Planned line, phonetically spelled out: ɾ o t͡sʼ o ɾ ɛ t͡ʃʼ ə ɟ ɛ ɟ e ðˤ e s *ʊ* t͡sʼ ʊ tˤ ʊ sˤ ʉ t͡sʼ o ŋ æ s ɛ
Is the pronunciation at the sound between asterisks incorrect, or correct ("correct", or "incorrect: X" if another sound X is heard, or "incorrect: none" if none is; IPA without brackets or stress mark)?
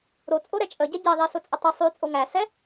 correct